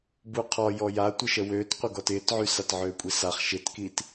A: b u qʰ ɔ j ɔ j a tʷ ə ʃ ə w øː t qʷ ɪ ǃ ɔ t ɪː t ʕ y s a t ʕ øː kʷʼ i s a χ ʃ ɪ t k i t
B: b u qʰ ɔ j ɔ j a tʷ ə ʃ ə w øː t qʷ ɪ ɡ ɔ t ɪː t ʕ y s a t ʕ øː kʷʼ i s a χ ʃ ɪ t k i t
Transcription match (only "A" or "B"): B